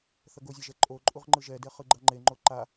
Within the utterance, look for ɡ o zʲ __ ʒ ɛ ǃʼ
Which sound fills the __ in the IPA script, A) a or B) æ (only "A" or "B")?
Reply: A